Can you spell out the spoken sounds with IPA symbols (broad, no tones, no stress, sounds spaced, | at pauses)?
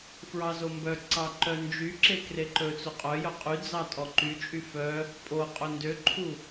f ɹ ɑ z o m b œ ǀ ɑ ǃ œ n d͡ʒ y ǁ e k r e ǃ ɵ t͡s o qʼ œ j œ qʼ y d͡z ɑ tʼ ɔ ǃ y t͡ʃʼ y f œ | pʼ o qʼ ɵ n d ø ǃʰ u